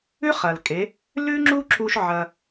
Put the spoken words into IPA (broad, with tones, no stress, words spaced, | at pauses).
ʉ˥χɐ˩lkʼe˩˧ | lʉ˥ŋ͡ǁu˥ ǁu˥ʃʕɐ˧